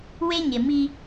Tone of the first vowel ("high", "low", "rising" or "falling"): high